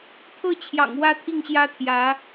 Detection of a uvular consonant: absent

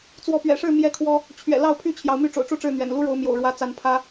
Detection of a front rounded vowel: present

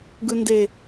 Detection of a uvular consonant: absent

